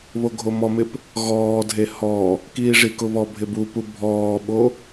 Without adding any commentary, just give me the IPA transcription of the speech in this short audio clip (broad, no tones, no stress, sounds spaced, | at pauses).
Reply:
β o ɡʱ o m ɔ m ɪ p | ɣ ɔː dʱ e h ɔ | k iː ʐ i k ʊ β ɔ bʱ ɪ b u p u bʱ ɔː ɓ o